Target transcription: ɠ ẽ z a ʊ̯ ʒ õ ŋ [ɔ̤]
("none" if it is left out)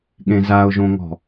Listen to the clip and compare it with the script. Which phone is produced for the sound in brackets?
ɔ̤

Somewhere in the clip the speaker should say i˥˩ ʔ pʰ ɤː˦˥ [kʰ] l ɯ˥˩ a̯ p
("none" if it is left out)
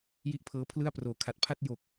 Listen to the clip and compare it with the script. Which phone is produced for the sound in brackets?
pʰ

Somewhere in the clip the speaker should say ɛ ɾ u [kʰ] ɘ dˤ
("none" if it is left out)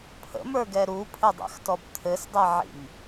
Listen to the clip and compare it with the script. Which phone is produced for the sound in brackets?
pʰ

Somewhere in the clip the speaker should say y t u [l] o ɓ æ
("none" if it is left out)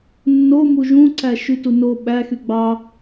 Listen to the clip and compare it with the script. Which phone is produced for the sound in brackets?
n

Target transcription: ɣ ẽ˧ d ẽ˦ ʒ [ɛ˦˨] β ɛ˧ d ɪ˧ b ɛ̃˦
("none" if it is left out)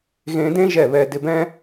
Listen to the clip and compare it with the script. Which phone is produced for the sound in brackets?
ɛ˦˨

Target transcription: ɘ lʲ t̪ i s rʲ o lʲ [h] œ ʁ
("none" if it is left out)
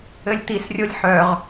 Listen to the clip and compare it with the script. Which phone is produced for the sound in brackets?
ħ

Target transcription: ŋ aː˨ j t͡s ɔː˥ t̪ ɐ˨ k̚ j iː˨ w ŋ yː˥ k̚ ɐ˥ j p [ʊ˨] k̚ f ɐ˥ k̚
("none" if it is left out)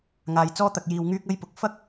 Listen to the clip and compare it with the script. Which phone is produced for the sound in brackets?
ʊ˨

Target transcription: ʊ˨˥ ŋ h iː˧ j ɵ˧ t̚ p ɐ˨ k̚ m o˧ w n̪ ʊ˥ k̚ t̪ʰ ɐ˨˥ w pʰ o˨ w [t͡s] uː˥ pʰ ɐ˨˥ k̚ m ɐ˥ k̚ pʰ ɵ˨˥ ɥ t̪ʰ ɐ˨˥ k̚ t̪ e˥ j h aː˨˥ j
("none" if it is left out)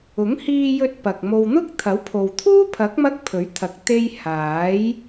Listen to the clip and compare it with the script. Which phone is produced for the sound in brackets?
t̪ʰ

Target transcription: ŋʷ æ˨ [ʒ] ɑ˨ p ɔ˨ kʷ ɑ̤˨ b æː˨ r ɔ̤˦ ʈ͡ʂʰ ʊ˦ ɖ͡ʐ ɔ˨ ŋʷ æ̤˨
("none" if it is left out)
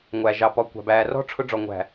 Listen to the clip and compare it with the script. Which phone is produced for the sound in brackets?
ʒ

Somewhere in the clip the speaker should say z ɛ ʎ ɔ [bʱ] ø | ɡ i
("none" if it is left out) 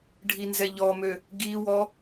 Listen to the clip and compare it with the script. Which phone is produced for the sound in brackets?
m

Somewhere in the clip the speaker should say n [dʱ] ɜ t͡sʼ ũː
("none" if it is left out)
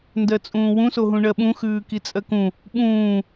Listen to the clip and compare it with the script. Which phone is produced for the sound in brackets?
d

